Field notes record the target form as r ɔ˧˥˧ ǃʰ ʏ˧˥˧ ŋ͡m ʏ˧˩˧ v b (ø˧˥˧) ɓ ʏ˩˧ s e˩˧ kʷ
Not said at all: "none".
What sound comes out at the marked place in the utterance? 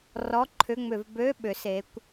ø˧˥˧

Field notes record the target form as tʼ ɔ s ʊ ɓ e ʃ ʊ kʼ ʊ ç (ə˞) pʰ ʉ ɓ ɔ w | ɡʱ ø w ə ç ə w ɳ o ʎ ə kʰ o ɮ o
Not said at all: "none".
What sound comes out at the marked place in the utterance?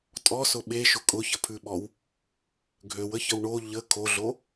ə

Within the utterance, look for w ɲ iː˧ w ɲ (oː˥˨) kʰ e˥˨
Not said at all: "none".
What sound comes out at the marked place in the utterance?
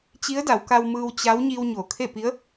oː˩˧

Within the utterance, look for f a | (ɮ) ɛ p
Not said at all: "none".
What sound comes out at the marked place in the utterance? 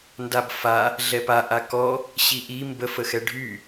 ɮ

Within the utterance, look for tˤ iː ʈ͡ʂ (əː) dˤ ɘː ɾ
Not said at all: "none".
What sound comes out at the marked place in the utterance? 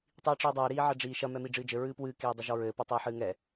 ɨː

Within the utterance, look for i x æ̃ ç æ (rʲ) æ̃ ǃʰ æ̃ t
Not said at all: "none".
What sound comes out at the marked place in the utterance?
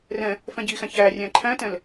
rʲ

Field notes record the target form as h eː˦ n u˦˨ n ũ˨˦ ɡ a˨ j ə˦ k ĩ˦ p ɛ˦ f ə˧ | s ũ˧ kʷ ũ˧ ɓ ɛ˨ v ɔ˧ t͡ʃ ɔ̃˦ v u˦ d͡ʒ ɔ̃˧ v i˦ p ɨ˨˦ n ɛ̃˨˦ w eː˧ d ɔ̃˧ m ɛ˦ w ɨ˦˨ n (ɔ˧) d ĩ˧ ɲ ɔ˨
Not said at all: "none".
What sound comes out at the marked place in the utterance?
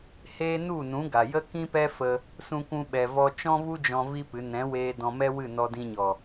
ɔ˧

